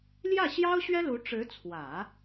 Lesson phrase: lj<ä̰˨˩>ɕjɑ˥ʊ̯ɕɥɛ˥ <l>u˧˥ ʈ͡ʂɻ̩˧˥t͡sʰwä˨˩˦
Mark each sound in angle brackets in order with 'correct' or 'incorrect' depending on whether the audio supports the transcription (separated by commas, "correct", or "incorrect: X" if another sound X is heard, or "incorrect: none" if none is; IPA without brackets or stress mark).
incorrect: ä˥˩, correct